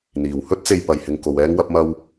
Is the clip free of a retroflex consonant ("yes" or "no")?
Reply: yes